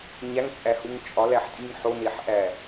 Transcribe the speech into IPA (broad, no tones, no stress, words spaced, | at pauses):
ɲæŋt͡sʼæhuŋ t͡ʃʼɒlæħtʼiŋ ħoneħʔæ